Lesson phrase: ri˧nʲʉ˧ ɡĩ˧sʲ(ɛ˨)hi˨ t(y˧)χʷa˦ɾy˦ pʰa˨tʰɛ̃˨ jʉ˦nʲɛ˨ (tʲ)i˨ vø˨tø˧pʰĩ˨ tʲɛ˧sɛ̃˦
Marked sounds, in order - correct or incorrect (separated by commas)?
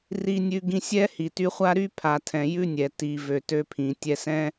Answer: incorrect, correct, incorrect